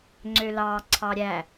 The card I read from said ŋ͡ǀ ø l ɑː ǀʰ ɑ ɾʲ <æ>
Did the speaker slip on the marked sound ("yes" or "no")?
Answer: no